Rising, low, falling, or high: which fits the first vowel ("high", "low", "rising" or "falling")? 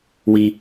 high